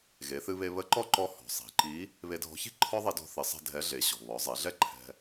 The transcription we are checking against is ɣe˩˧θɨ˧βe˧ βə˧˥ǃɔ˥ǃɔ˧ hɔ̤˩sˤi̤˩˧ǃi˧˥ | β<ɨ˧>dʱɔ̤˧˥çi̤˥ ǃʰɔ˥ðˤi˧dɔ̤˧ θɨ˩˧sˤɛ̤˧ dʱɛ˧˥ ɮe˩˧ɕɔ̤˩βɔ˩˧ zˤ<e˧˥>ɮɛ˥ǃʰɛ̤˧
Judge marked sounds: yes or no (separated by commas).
no, no